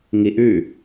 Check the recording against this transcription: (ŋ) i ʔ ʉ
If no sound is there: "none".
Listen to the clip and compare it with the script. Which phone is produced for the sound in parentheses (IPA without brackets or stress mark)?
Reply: ŋ